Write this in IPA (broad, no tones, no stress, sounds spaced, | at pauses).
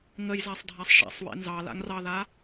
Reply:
ŋ ə j z a sˤ dʱ a sˤ ʃ a̰ sˤ w ḛ n z ɑ l a̰ ŋ r ɑ ð a